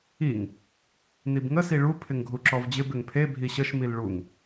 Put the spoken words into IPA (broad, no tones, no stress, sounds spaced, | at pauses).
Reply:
i ŋ | n i b ŋ ə s i ɭ u pʰ ɪ ŋ ɡʱ u ǁ ɔ v d͡ʑ ɪ b ɪ ŋ pʰ e bʱ i ɕ ə ʃ m i l ɭ u ŋ